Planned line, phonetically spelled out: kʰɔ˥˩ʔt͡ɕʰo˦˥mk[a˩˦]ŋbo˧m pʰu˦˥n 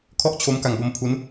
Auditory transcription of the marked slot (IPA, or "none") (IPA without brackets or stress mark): a˧